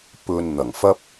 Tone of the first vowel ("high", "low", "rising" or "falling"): low